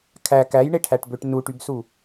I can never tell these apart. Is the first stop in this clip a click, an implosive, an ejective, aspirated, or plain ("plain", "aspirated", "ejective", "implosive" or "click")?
aspirated